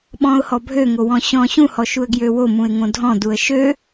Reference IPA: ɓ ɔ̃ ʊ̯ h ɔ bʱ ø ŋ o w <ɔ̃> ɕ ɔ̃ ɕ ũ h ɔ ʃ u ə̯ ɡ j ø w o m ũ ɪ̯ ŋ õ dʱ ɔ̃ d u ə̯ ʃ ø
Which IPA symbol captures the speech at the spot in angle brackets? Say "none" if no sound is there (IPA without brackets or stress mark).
ɔ̃